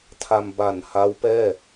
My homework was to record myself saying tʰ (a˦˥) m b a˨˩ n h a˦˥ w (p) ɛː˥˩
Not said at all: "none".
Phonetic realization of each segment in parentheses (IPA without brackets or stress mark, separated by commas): a˧, p